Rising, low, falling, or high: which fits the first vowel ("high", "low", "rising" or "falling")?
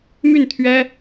falling